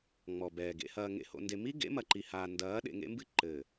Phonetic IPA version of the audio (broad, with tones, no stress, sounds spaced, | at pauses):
ŋ͡m ɔ˨ b ɛː˨ ɡ ḛ˨ h ɐː˨ ŋ ḛ˨ h o̰˨ n d e˨ m i˦ ɡ ḛ˨˦ m ɐ˨ ǃ i˨ h aː˨ n d ɐː˨˦ ɗ ḛ˨ ŋ ḛ˦ m b ɨ˦ ǃ ɘː˨